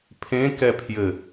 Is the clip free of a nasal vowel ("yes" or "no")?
no